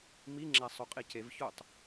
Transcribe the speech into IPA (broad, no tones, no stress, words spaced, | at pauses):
miŋ͡ǁæ sˤoqʼicevçotˤ